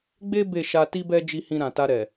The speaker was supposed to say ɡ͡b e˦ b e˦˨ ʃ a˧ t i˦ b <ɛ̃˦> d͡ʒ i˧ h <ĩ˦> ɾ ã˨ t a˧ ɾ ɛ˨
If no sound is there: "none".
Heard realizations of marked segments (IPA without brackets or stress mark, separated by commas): ɛ˦, ĩ˧